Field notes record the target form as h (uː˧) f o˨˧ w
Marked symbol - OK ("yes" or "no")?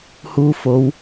yes